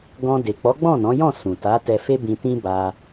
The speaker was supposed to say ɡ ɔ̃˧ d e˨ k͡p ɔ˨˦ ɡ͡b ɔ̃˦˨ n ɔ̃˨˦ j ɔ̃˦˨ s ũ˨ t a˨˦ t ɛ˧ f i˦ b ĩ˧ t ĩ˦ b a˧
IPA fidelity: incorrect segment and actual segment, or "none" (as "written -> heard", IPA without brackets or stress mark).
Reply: i˦ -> e˦